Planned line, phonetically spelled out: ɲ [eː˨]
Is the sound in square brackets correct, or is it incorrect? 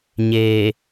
correct